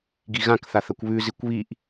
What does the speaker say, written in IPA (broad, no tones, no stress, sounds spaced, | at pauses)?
ɡ i ɣ ã k θ a θ ɐ kʷ β ʉ z i kʷ β i ʔ